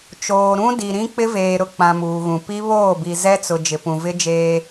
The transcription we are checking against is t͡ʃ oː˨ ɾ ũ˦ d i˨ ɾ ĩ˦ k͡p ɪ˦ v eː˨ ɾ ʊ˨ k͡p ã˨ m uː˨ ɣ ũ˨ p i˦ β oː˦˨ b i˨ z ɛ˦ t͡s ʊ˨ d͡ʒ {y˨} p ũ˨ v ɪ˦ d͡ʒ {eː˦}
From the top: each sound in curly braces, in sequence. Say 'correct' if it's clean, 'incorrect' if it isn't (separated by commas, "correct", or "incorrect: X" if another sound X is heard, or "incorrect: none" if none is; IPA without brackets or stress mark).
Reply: incorrect: ɪ˨, correct